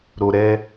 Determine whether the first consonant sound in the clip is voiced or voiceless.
voiced